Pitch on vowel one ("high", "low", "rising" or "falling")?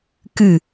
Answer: falling